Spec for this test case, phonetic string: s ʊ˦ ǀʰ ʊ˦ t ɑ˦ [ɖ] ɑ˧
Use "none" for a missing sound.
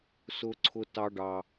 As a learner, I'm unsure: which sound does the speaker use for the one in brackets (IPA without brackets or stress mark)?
ɖ